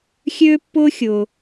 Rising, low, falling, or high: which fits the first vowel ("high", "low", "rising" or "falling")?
high